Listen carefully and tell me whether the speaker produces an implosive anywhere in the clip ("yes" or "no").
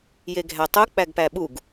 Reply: yes